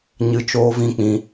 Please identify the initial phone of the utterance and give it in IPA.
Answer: ɲ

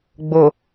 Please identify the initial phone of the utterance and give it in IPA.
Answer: ɡ͡b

